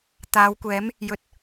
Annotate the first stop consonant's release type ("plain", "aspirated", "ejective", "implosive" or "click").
plain